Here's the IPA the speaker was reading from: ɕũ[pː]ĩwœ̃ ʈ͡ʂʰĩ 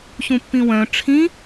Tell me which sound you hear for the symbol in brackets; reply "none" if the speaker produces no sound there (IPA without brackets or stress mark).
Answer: pː